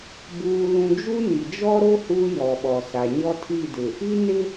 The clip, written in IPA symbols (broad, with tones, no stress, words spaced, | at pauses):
buː˨lũ˨ d͡ʒu˦ni˨ d͡ʒɔ˦ɾo˦ huː˦jɔ˨ɓɔ˨sa˨ ɲɔ˦tʰi˦˨ dɪ˨ | i˦nɪ˦